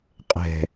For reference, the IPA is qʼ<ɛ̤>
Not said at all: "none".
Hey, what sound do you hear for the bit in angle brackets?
ɛ̤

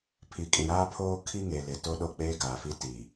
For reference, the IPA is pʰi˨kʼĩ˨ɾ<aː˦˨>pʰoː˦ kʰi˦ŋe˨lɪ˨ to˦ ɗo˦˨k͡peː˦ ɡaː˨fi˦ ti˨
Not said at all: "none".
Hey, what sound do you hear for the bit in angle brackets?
aː˦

